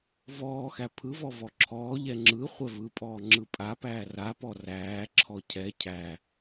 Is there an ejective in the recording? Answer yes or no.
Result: yes